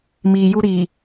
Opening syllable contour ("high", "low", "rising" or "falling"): low